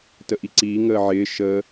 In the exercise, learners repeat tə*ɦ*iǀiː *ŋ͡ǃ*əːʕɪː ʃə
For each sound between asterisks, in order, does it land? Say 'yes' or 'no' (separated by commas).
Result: no, no